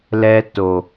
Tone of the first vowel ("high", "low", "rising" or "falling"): low